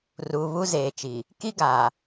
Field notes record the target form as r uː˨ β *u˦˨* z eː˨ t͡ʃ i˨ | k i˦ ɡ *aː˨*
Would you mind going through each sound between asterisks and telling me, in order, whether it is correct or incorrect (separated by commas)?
incorrect, correct